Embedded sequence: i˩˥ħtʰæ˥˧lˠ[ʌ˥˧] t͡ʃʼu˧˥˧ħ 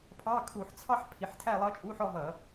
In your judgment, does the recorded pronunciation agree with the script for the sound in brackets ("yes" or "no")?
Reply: no